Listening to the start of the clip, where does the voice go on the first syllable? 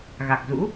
low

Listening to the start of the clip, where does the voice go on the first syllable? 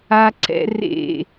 high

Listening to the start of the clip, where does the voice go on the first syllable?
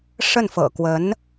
falling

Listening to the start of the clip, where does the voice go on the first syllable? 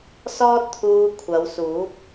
high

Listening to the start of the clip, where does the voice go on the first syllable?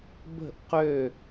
falling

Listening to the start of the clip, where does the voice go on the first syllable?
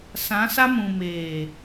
rising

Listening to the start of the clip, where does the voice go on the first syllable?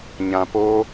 low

